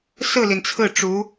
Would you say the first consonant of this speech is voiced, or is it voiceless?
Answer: voiceless